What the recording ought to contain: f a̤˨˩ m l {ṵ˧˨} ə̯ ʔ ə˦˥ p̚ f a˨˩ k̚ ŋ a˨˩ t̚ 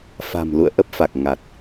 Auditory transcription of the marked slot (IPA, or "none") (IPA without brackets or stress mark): ṵ˧˨